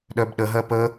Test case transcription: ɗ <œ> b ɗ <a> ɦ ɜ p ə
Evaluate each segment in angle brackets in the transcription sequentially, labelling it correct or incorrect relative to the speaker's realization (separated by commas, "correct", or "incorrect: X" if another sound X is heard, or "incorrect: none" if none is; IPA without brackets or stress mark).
correct, incorrect: ə